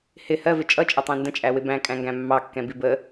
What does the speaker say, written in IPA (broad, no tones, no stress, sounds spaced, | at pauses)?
h ɪ h ɜ v ɪ t͡ʃʼ ʌ t͡ʃʼ ə tˤ ĩ n d ə̃ t͡ʃʼ æ w ɪ b æ̃ kʼ æ̃ ŋ ɡ æ̃ mː ɑ kː ɛ̃ b i b ə